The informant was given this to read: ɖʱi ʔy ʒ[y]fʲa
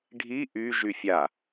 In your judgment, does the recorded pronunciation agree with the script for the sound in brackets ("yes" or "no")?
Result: yes